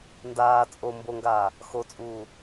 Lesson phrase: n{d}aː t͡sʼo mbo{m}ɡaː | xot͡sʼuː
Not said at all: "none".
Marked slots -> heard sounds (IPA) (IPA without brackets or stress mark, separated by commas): d, ŋ